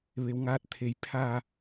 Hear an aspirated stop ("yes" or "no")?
yes